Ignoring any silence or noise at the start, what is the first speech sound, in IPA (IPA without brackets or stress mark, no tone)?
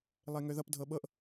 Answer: lˠ